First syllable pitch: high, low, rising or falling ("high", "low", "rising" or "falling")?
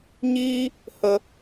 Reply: high